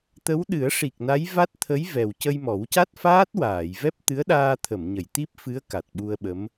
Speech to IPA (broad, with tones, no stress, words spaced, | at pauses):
t̪ə˧˥wɗɨ˨˩˦ə̯ʂi˨˩k̚na˧˥j va˦˥t̚t̪ʰə˧˥jvɛ˨˩wcə˧j mɔ˨˩˦wca˦˥t̚faː˦˥t̚waː˨˩˨j vɛ˦˥p̚t̪ɨ˧˥ə̯ɗaː˧t̪ʰə˨˩˨m ɲə˨˩˨j t̪i˦˥p̚fɨ˧˥ə̯ ka˨˩t̚ɓu˧ə̯ɓə˧˥m